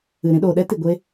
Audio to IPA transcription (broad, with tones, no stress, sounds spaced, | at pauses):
ɨ˨ ɾ ĩ˧ ɗ oː˨ ɗ ɛ˦ t i˨ ɡʷ e˧